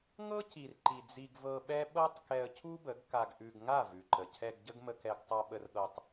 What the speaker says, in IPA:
ŋ ɤ˦ c i˨ r ǃ i˨ d͡z i˧ ɡ v ɤ˧ ɓ ɛ˦ ɓ ɤ˦ tˤ k ɛ˧ ə̯ cʰ u˦ b ə˨˦ ɡ k a˧ ɡ ʔ ʉ˧ ɡ ŋ a˦˨ v ʉ˨ ǃ ə˨ cʰ ɛ˧ ɡ ɟ ə˦ ɡ m ə˧ k ɛ˧ ɡ tˤ a˧ ɓ ə˧ r ɠ ɤ˧ tˤ

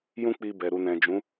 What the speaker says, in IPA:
j ũ˦ k͡p i˧ b ɛ˨ ɾ u˨ n ɛ̃˨ d͡ʒ ũ˨˦

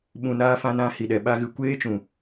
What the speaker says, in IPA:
ɓ ũ˨ n aː˧ f ã˧ n ã˨˦ h i˨ ɗ ɛ˨ ɓ a˦ ɣ ɨ˧ kʷ eː˦ t͡ʃ ũ˨

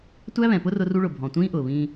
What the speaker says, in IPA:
tʷ æ˦ β ɛ̃˨ p ʊ˦ r ʊ˦ r u˦ ɭ ʊ˨ bʱ ɔ̃˨ tʷ ĩː˦ ʔ ʊː˨ β ĩː˦

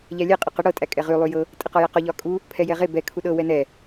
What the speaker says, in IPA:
ʎ æ lʲ ɛ qʼ o q ə ɽ ɤ tʼ æ kʼ ɛ ʁ y lˠ y j ɤ | tʼ ə q ɒ j æ q ɒ ʎ ɒ kʼ u | pʰ ɛ j ɛ ʁ e b ɛ kʰ u ɗ ɤ w ɛ n ɛ

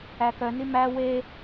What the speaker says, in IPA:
æ k œ n i m æ w e

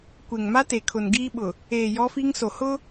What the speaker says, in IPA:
kʷ e˨ ŋ m a˦ t e˨ kʰ ʊ˨ n ɡ iː˦ ɓ ʊ˨ | eː˨ j ɔ˦ f i˦ ŋ s o˨ h ʊ˦

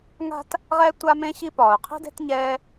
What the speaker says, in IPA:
ŋ a̤˦ t | ʁ ɛ˥ tʷ a˦ m ẽ˦ ɕ i˦ p ɒː˩ ʊ̯ qʰ i̤˥ d e̤˥ t ɲ ɛː˦

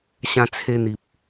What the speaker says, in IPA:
ɕ ã˧ t͡sʰ e˧ n̪ i˨ p̚

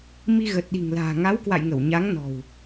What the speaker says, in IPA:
m i˧ ɣ ə˨˩ t̚ ɗ i̤˨˩ ŋ l a̤ː˨˩ ŋ a˨˦ w k w a̰˧˨ j ŋ ə˧˩ w ɲ a˨˦ ŋ n ɔ̤˨˩ w

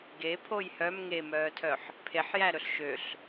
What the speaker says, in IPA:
ɡ e pʰ o j h œ m ŋ e m œː tʰ œ ħ | pʰ e ħ j æ ɾ ɵ ɬ ʃ ø ɬ

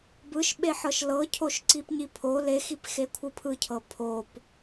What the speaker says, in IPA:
b ɯ ʃ ɓ e ħ ɤ ʃ l ɤ cʰ o ʃ ǀ i p ɲ i pʰ o l e x i p x e kʷʰ ɯ pʰ ɯ cʰ ɤ pʰ o p

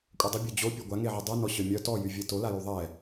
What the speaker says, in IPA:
kʷʼ œ dˤ ə bʲ œ d͡ʑ o pʲ ø ɡʷ a ŋ e ʕ ɛ dˤ u n ɔ ɕ œ mʲ œ t ɔ j y vʲ e t o l a j u ðˤ ɛ

